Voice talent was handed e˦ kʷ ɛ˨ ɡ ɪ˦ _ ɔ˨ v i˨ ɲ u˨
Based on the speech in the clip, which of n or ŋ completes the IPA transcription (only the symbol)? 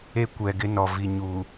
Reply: n